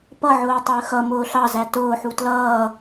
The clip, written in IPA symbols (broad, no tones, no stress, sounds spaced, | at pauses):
p ʌ ʕ ʊː tˤ əː x ʌ m ʊː ɬ ɑ z æ t ʊː ħ u t l ʌː